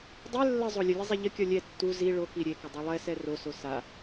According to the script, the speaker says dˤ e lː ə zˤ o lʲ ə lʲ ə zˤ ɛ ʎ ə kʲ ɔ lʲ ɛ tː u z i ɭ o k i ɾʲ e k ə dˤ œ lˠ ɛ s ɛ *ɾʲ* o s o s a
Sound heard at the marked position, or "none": r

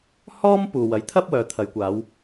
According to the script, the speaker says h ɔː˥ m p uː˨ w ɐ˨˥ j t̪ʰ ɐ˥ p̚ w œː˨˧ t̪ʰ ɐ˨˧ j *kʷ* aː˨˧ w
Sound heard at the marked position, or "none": kʷ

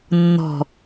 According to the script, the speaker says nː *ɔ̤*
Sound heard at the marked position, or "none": ɔ̤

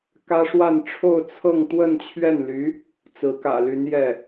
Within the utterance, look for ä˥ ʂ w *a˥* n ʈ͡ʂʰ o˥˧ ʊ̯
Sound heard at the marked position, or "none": a˥˧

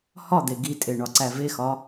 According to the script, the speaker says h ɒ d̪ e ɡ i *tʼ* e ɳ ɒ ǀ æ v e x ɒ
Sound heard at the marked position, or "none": tʼ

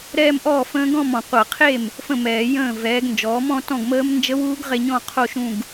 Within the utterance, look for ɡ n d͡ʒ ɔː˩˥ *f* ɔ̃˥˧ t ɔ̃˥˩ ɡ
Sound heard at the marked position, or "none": m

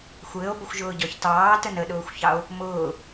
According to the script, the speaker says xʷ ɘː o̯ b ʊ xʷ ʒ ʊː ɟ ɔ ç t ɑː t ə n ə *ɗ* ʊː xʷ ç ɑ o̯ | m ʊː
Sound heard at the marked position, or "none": ɗ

